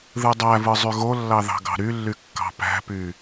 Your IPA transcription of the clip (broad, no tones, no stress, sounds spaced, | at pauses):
ð ɯ dˤ æ v ɯ zˤ y ɣ o lː ɑ ð ɑ̤ ɡ ɑ̤ ɾ y lː y kː ɑ̤ p æ̤ p y